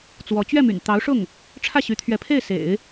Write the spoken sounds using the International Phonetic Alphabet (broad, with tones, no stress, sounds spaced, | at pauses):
t͡s w ɔ˧˥ t͡ɕ ɥ ɛ˥˩ m y̰˨˩ n t̪ ɑ˧˥ ʊ̯ ʂ ʊ˥˩ ŋ | ʈ͡ʂʰ ä˥˩ ɕ y˧˥ t̪ʰ ɥ ɛ˧˥ pʰ e˥˩ ɪ̯ s ḛ˨˩˦ ɪ̯